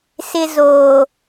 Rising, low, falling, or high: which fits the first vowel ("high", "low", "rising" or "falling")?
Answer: high